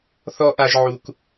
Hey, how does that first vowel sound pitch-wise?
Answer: high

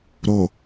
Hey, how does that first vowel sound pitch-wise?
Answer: low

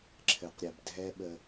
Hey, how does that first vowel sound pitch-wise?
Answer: low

